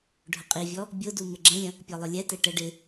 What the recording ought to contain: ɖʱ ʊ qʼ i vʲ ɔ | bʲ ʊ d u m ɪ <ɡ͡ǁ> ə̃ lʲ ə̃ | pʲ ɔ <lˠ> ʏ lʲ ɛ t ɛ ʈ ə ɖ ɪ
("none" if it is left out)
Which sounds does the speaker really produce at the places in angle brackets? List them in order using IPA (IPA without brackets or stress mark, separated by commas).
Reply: ɡ͡ǁ, lˠ